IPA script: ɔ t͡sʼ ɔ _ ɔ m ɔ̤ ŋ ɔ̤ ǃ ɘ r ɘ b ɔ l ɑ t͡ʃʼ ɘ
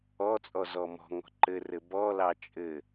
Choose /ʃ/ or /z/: z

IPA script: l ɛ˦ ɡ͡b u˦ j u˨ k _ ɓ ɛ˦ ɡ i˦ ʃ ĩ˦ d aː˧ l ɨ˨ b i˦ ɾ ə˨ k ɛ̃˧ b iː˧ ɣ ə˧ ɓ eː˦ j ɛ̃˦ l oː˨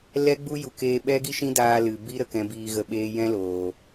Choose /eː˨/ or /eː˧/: eː˧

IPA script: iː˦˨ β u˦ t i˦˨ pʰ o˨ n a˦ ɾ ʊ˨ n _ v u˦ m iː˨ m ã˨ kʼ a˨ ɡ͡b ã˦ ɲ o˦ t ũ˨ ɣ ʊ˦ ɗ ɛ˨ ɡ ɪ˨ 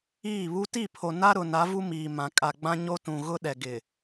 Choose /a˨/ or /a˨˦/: a˨˦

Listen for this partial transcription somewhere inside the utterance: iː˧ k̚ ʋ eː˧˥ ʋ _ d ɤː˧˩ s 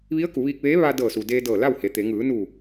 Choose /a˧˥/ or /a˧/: a˧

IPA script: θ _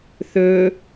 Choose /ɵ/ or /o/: ɵ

